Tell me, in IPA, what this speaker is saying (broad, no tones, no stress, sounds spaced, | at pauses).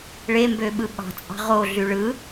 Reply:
ɭ e m b ø ɓ ɯ ɓ ɑ̤ t͡sʼ ɑ̤ ʁ o ɮ y ɭ ɯ